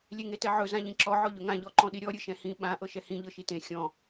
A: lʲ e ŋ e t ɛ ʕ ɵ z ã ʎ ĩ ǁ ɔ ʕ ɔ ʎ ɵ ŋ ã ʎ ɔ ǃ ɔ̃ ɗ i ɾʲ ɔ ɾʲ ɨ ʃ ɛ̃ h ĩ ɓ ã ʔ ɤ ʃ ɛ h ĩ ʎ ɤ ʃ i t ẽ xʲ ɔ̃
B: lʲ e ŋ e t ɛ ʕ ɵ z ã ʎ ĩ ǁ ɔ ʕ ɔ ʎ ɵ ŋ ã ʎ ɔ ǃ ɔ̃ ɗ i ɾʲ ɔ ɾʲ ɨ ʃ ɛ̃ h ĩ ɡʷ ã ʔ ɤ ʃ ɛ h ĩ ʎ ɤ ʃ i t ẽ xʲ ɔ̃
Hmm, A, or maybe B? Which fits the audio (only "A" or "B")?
A